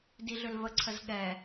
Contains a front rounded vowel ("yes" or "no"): yes